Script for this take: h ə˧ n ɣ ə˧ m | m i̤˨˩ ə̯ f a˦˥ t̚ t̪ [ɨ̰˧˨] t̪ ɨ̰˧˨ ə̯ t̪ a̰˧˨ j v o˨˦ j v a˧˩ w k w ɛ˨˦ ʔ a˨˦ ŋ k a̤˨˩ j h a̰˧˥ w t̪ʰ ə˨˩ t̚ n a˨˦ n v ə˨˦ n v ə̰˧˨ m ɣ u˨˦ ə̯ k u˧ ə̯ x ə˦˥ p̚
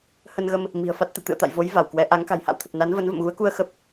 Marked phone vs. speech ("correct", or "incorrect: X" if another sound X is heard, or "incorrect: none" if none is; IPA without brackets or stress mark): correct